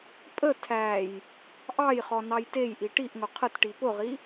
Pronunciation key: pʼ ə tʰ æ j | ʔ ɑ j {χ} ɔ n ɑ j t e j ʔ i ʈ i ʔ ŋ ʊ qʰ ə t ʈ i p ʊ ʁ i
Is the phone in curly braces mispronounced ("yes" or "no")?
no